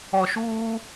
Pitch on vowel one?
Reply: low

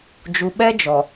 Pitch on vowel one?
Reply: low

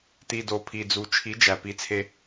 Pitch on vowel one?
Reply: low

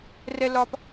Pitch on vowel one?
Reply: low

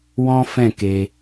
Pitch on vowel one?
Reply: high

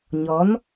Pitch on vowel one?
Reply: rising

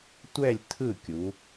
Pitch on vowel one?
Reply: falling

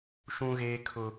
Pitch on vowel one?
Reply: high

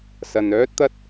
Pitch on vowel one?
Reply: low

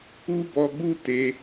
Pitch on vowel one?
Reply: high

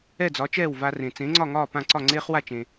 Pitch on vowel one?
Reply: falling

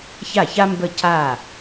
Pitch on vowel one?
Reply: falling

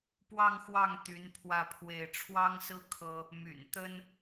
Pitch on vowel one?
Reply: falling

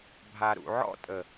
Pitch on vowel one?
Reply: low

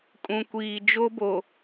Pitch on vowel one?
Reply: low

